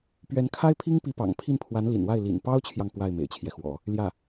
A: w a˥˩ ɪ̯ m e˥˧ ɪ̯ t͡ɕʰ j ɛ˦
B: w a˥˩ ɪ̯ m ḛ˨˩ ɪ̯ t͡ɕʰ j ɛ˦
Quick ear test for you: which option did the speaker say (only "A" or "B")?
B